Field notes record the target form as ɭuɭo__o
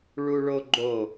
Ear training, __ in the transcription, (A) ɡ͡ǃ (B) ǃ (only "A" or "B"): A